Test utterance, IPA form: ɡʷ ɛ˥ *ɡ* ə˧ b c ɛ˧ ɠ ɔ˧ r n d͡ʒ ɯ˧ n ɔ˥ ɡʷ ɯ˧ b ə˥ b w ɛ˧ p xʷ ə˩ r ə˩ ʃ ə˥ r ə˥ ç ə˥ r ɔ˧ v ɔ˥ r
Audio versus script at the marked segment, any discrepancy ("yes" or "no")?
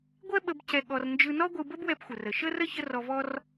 yes